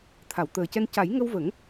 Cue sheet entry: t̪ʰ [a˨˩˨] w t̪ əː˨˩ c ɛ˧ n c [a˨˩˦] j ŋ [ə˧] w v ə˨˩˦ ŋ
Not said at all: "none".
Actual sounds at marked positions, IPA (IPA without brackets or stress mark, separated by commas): a˨˩˨, a˨˩˦, ə˧